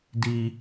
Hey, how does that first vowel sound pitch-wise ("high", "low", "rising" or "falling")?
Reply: high